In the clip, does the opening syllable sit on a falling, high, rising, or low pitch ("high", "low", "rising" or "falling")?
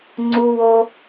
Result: high